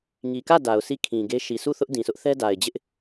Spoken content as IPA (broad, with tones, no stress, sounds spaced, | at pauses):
ŋ i˨ k ä˦˨ d a˨ ʊ̯ s i˦˨ kʰ ĩ˨ ɡ e˦ ʃ i˨ s u˦˨ θ ʊ˦ ʔ d ĩ˨ s ʊ˦ ʔ θ ɛ˦ d a˨ ɪ̯ d͡ʑ ɪ˦ ʔ